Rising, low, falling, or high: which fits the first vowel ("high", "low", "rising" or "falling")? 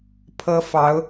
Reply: high